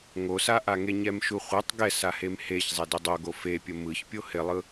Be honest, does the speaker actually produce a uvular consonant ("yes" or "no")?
yes